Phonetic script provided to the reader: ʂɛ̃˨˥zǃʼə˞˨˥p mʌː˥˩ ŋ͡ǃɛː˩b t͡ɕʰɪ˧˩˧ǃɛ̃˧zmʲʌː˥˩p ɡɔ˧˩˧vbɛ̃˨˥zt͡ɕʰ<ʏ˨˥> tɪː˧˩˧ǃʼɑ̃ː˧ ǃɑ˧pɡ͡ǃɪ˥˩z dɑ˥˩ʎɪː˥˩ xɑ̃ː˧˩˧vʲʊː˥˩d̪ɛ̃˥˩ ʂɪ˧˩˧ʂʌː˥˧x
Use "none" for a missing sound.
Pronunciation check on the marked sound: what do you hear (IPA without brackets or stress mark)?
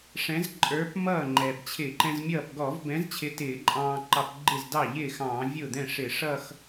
ɪ˨˥